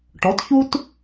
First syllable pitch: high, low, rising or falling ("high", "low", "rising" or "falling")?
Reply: rising